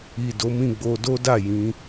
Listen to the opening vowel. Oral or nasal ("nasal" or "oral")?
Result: oral